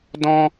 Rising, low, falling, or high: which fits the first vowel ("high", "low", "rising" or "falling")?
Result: high